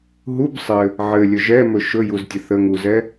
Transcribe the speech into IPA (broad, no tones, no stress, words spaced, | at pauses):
ɦub sˤɘ | ʕɘlʲɵ ʒɛmɵ ʃɵjuztʲə θəŋuzɛ